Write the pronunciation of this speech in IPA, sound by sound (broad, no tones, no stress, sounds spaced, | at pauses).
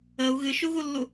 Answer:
ə u̯ ɣ ɨ ʃ u ɣ u lː u